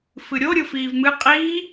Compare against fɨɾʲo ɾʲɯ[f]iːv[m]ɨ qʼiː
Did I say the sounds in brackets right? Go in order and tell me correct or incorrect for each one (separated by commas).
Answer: correct, correct